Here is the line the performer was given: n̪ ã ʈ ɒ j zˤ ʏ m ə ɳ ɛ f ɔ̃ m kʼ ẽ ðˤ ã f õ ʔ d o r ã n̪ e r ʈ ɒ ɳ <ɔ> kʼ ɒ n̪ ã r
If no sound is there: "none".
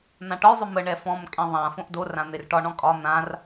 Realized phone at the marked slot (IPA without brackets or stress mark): ɔ̃